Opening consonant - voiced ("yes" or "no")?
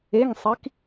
yes